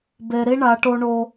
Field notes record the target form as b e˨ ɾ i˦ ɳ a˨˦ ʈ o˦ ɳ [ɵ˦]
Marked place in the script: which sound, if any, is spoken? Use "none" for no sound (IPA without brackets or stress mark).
o˦